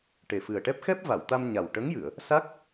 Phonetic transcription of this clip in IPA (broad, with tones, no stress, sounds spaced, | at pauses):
ʈ e˨˩ f ɨ˨˩ ə̯ ʈ ɛ˦˥ p̚ x ɛ˦˥ p̚ v a˨˩˨ w t̪ a˧ m ɲ a˨˩ w ʈ ə˧˥ ŋ j ɨ˨˩˨ ə̯ | s a˦˥ k̚